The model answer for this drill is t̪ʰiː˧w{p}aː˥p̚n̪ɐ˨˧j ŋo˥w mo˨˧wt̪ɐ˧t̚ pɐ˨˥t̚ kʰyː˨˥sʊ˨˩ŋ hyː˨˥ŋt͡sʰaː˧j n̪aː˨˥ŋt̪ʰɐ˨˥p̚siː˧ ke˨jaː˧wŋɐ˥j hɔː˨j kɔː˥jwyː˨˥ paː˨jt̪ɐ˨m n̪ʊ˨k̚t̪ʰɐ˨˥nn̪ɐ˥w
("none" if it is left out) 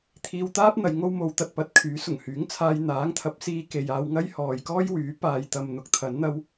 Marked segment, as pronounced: t̪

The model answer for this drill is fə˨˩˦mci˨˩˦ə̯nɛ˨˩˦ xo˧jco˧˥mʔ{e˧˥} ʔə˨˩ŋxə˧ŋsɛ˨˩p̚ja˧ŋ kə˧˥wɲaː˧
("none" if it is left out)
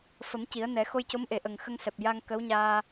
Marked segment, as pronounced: e˨˩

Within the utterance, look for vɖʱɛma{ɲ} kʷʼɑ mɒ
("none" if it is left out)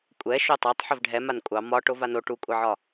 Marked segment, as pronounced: n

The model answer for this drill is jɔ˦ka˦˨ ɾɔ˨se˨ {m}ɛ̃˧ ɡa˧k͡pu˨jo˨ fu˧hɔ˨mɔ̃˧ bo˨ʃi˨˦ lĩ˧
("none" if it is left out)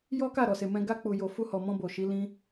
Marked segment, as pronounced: m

